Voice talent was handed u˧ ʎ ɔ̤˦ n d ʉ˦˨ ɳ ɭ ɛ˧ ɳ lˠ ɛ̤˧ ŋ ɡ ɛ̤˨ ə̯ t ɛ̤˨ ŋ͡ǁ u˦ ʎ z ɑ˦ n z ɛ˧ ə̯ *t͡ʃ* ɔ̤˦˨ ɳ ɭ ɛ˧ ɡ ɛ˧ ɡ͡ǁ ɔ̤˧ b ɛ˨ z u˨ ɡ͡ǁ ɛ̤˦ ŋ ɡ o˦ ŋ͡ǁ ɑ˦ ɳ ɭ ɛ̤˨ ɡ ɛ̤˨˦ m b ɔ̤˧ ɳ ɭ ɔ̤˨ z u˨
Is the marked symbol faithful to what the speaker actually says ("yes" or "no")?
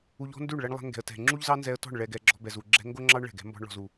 no